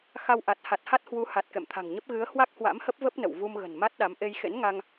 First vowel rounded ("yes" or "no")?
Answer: no